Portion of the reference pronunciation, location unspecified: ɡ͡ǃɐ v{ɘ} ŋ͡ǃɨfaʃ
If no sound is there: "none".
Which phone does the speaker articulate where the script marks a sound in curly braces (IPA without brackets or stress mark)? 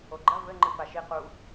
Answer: ɘ